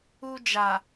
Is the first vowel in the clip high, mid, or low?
high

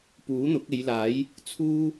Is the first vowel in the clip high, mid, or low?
high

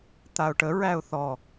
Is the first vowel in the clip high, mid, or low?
low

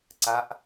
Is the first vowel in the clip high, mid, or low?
low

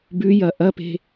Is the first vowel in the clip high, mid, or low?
high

